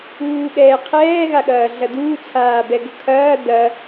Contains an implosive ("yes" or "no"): yes